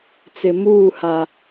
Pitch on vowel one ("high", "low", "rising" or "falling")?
low